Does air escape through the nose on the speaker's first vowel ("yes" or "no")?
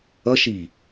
no